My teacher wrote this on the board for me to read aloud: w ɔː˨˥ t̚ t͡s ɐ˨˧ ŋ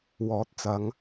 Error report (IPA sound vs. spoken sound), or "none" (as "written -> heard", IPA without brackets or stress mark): none